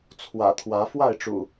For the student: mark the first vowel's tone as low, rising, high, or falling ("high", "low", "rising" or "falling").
low